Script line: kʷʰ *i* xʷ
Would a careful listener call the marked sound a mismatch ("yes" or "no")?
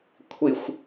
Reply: no